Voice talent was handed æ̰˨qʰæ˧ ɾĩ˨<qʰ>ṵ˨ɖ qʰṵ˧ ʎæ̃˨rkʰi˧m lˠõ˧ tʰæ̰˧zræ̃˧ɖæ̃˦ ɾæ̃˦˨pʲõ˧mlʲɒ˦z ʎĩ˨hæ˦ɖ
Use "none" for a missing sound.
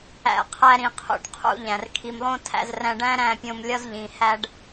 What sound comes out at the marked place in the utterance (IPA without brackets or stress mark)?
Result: qʰ